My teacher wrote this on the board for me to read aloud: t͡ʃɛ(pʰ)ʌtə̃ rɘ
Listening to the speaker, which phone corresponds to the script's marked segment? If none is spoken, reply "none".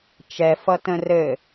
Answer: f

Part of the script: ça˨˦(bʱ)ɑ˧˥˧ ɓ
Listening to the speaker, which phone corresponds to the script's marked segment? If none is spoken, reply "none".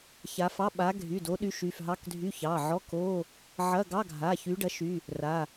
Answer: f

